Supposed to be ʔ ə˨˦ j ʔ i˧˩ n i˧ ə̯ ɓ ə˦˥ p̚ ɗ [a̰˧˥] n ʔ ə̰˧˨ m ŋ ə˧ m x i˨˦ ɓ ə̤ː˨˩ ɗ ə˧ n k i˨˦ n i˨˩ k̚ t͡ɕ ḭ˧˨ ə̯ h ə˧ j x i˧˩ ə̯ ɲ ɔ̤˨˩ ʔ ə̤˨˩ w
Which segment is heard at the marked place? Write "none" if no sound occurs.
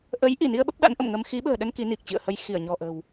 a̰˧˥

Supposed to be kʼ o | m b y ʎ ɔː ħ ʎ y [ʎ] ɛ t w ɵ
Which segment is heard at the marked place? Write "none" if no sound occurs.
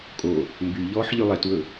lˠ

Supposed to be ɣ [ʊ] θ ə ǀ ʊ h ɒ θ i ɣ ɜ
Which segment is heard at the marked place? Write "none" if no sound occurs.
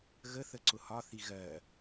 ə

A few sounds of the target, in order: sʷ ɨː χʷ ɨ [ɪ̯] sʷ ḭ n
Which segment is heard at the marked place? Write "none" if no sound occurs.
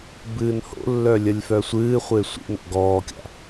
ɪ̯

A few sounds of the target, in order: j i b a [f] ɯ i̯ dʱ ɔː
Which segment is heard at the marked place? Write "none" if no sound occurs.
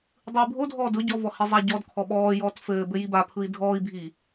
pʰ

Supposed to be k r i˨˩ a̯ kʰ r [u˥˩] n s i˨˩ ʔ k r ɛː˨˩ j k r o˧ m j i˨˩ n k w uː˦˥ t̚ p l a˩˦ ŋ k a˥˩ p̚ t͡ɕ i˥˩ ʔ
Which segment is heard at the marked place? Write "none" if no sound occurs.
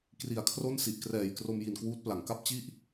o˥˩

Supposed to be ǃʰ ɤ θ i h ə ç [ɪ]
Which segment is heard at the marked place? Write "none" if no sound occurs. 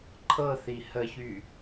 y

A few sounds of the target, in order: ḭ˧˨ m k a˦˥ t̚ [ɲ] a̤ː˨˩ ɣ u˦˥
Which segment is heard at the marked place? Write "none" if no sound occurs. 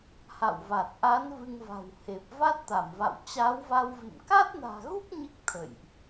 n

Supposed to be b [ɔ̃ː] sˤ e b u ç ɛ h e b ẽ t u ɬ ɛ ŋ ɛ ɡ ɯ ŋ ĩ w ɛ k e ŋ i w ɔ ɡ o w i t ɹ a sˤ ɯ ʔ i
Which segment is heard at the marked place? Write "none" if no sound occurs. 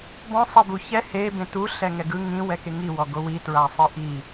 ɔ̃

